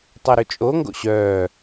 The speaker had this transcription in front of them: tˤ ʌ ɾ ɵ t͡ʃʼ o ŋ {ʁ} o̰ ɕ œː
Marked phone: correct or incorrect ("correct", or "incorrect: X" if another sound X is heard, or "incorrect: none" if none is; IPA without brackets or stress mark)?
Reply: incorrect: ɡ